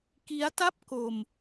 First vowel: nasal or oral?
oral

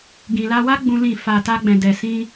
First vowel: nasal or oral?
nasal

